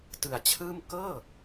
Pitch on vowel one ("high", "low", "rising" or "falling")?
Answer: low